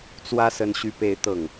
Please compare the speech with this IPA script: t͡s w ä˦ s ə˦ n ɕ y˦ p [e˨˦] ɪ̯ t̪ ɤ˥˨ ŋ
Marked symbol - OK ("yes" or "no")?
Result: no